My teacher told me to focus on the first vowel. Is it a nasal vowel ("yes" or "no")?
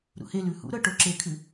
no